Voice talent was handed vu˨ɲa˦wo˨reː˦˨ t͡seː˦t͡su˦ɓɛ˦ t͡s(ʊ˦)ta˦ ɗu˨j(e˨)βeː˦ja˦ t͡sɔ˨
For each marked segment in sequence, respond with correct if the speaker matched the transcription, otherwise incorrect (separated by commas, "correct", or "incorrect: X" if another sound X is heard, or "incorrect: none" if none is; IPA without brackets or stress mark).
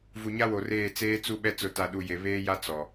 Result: correct, correct